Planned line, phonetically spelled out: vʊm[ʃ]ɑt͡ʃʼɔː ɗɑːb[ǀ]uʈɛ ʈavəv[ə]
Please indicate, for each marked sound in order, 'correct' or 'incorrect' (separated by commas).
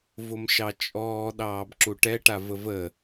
correct, incorrect, correct